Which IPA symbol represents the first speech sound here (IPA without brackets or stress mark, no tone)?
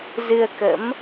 z